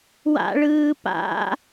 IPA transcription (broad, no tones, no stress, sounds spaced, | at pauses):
w a̰ ɭ ɯː p a̰